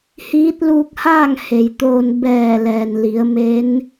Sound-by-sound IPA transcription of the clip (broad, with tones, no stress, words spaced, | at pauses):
hiː˧˥t̚luː˧k̚haː˥˨ŋ he˩jt̪oː˧n bɛː˧˩ lɛː˩nli˩˧ə̯ me˧˥n